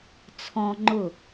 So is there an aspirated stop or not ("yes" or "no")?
yes